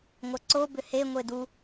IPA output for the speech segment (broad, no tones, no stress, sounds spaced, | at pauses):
ŋʷ ɐ ǀ o b ʏ h e ŋʷ e d u